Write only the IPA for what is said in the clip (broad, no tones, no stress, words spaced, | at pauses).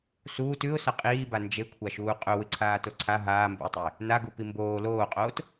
suːt ʉʊ̯sɐ qʼiːba nd͡ʒekʷʰaʃuː qʼɵwɨǀʰaːto ǀʰa ɦaːmbṵɪ̯tˤɵɪ̯ | naɡupi mboː loːqʼoːt